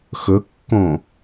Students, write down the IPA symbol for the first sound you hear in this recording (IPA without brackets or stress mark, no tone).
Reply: x